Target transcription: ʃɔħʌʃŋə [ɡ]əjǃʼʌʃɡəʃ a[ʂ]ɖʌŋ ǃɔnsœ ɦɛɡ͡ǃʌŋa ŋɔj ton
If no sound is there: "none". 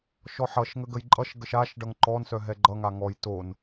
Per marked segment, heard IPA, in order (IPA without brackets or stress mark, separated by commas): ɡ, ʃ